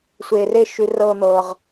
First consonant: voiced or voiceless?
voiceless